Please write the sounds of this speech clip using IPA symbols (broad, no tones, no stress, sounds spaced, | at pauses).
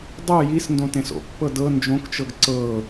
dˤ ɯ j i s n d õ t ẽ s o̰ pː ɤ d ɤ n d͡ʒ õ k t͡ʃ ɤ ɡ ǀ ɤ